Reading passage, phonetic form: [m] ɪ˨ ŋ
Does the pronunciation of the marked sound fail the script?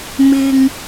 no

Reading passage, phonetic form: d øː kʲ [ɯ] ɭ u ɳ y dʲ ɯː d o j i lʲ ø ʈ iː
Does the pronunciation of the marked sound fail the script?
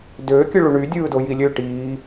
no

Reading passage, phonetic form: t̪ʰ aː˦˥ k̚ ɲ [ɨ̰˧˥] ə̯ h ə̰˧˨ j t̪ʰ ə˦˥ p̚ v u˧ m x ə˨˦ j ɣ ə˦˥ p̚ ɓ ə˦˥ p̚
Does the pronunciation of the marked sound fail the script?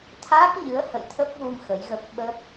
yes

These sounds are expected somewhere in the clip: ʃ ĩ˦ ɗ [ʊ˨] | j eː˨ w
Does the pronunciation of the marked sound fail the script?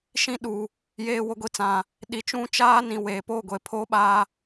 yes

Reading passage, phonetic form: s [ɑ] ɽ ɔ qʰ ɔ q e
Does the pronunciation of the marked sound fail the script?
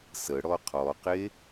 yes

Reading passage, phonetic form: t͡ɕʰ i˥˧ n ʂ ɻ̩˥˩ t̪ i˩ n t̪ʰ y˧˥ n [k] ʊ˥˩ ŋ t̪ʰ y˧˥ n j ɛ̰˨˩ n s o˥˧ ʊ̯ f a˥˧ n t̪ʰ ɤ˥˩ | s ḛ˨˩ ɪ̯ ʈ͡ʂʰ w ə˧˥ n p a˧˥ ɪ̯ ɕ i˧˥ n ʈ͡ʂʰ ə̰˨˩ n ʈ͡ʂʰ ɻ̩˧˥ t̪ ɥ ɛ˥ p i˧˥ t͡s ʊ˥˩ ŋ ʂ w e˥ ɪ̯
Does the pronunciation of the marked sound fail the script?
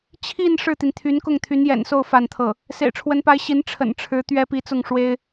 no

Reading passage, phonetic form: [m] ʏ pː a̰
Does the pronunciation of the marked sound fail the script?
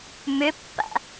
no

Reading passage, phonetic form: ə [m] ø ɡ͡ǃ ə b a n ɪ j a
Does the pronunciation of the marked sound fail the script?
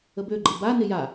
yes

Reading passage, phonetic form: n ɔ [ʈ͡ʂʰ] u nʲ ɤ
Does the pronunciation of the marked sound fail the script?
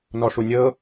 yes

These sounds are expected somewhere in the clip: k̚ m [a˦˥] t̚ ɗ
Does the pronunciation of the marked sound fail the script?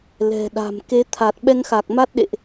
no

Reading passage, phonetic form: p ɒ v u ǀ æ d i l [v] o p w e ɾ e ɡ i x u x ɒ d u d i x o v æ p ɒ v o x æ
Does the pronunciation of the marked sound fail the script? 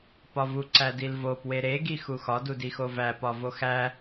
no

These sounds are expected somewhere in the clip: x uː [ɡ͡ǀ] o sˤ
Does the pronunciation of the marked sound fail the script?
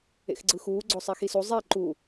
no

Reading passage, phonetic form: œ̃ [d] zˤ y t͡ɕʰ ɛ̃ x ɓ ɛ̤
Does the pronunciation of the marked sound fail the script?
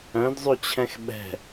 no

